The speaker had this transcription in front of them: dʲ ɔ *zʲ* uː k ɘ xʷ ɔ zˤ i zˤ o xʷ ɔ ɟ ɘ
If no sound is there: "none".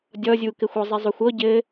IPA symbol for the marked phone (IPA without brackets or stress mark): zʲ